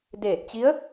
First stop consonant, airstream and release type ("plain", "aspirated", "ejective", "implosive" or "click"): plain